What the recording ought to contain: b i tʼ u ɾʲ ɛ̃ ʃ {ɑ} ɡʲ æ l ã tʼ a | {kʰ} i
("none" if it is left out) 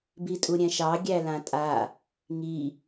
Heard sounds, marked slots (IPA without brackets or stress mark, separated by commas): ɑ, ŋ